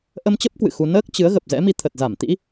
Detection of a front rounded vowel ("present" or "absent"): absent